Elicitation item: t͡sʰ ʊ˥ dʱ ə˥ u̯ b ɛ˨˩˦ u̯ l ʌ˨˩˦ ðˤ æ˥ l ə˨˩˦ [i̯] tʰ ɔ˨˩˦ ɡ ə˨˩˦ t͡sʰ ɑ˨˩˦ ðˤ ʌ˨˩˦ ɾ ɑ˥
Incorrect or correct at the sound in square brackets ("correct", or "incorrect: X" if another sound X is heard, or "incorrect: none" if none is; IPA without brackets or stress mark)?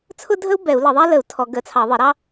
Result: incorrect: u̯